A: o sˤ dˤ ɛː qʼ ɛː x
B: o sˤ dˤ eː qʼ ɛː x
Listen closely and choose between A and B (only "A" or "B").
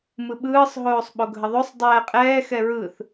A